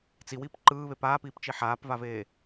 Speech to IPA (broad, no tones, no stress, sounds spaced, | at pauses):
t͡s i w iː p ǃ ɯː β e p aː p iː p t͡ʃ i ħ aː p v a v eː